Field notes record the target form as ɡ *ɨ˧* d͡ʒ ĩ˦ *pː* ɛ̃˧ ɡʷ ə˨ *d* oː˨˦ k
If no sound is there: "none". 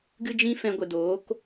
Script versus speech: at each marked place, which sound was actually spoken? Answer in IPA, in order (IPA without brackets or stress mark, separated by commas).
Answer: ɨ˦, f, d